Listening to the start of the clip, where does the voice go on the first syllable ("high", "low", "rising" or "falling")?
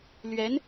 rising